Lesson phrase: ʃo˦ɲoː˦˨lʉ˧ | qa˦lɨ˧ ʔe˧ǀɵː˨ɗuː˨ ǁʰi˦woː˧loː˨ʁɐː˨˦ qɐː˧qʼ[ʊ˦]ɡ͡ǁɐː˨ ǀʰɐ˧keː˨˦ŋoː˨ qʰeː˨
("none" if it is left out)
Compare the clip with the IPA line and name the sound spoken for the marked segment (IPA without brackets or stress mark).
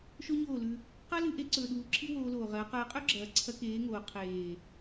ɵ˦